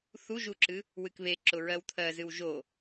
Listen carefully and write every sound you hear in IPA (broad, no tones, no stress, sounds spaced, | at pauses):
θ u ʒ u ǁ ɨ | w ɨ k β e ǁ ʊ ɹ ɜ w t̪ʰ ɜ z ɨ w ʒ o